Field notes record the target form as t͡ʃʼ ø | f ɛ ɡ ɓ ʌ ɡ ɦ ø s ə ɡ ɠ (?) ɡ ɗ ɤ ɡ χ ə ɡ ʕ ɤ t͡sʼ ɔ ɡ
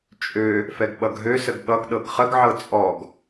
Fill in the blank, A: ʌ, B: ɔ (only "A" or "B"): A